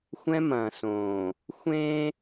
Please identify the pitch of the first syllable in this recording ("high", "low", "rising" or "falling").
high